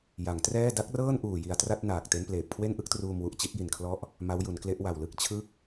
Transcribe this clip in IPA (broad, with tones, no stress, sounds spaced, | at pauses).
j a˩˦ ŋ t r ɛː˥˩ d a˦˥ k̚ r ɤː˥˩ n ʔ uː˨˩ j i˨˩ a̯ t r a˥˩ t̚ n aː˨˩ k̚ t e˦˥ n p l eː˨˩ p̚ kʰ w e˥˩ n ʔ ɯ˦˥ k̚ t r uː˧ m w u˨˩ ʔ t͡ɕ i˥˩ t̚ j i˨˩ n kʰ l ɔ˦˥ ʔ | m a˦˥ w j u˩˦ n k l e˦˥ ʔ w a˨˩ w l ɯ˥˩ k̚ t͡ɕʰ ɯ˥˩ k̚